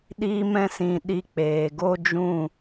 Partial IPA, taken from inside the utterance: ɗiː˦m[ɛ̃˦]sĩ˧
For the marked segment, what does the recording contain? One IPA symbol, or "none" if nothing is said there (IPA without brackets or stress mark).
ɛ̃˦